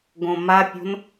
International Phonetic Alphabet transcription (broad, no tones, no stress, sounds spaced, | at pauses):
ɡ õ m a pʲ o̤ n